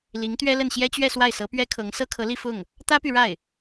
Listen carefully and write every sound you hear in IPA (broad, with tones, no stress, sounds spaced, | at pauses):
l i˧˥ ŋ t̪ ɥ ɛ˥ l ə˥˩ n ɕ j ɛ˥ t͡ɕ ɥ ɛ˥˧ s w a˥˩ ɪ̯ s ɤ˧˥ p ɥ ɛ˥ kʰ ɤ˧˥ ŋ s ɤ˥ kʰ ɤ˧˥ l i˥˧ f ʊ˥˩ ŋ | t̪ ä˥ p y˨ ɻ a˥˩ ɪ̯